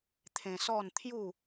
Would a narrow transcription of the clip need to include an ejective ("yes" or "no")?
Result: no